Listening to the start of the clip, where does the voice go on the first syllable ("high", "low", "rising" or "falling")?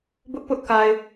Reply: high